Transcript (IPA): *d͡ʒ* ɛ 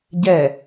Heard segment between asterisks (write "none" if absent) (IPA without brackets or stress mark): ɟ